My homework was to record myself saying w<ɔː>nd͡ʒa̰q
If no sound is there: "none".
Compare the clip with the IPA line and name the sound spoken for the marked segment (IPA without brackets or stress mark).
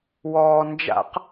ɔː